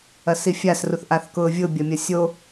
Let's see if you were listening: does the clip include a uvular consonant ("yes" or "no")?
no